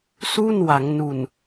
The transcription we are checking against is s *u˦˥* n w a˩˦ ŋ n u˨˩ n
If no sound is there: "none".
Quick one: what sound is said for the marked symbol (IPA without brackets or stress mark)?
u˥˩